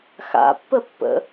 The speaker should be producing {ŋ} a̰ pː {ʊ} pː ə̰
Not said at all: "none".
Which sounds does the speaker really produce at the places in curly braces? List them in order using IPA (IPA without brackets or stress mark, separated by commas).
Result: x, ə